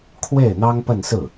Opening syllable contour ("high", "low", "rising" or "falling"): falling